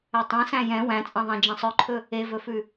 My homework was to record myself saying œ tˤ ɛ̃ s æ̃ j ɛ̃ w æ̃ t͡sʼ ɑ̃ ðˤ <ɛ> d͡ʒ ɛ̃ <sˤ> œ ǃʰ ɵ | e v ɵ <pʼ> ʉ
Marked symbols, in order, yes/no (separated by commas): no, yes, no